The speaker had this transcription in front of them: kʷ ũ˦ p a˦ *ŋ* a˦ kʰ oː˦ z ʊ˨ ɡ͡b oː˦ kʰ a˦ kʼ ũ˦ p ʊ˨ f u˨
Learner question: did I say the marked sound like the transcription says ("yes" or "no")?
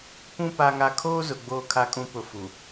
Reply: yes